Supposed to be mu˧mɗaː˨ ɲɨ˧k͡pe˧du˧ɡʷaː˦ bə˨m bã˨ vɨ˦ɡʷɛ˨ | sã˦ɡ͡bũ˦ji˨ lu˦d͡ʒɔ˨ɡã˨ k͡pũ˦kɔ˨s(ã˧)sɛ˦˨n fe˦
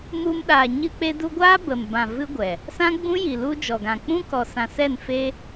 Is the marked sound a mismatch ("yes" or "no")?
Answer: yes